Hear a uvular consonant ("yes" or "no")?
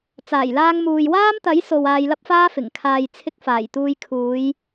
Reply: no